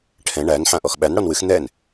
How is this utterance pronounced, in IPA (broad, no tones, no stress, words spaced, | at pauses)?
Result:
ʈʰɛ̃ ɳæn ħãʔɔxɓæn ɽɔnwɨx n̪ɛn